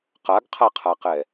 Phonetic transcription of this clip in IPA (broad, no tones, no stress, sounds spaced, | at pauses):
q a ɡ qʰ a qʰ a q ɛ